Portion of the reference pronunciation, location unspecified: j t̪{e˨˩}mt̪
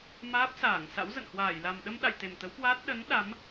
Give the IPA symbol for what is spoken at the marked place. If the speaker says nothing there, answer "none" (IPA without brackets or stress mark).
e˨˩